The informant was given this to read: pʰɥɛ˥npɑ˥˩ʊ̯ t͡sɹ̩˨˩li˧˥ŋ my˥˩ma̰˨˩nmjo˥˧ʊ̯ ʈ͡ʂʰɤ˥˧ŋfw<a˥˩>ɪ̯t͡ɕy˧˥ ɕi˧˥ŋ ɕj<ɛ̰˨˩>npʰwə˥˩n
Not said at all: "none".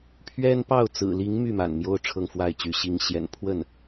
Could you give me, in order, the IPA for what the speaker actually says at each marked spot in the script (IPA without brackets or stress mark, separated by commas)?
a˥˩, ɛ̰˨˩